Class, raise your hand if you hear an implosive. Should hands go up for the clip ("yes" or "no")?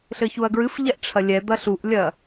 no